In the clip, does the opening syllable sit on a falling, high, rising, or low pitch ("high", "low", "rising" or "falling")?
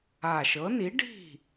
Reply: low